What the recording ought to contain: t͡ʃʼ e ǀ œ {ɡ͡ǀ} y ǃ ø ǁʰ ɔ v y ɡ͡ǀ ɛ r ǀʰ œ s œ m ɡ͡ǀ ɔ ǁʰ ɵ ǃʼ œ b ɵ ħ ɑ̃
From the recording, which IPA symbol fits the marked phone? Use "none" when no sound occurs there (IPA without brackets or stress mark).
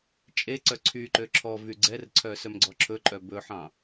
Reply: ǀʰ